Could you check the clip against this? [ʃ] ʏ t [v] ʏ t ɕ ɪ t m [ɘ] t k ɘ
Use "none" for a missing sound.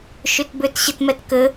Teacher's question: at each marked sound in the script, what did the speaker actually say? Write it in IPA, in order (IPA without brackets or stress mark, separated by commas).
ʃ, b, ɛ